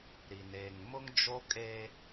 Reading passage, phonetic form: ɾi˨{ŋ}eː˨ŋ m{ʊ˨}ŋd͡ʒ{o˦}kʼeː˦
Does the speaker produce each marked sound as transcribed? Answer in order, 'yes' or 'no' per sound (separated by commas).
no, no, yes